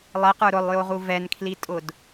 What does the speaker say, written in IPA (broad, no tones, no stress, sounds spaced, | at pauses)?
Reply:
lˠ ɛ q ə˞ ɾ ʊ lˠ j o ʁ u v ɛ n kʰ l i tʼ ʊ d